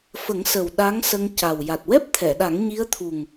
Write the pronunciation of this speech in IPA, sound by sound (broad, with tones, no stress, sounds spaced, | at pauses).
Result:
f ə˨˩˦ ŋ s ə˨˩ w ɗ a˧˥ ŋ s ə˧ ŋ c a˨˩ w j a˨˩ t̚ w ɛ˦˥ p̚ t̪ʰ ɛ˨˩˨ ɗ a˨˩˦ ŋ ɲ i˧˥ ə̯ t̪ʰ u˨˩ ŋ